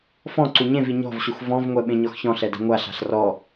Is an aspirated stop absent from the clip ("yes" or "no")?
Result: yes